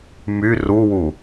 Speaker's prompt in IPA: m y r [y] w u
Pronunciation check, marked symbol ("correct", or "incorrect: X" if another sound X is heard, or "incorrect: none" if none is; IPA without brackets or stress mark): incorrect: u